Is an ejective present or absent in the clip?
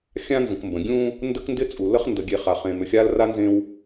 present